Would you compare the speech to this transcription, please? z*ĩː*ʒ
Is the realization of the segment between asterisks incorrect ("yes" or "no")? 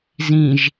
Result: yes